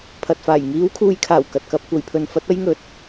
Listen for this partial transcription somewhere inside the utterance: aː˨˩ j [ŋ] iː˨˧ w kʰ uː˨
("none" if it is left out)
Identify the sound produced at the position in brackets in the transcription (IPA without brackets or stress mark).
ŋ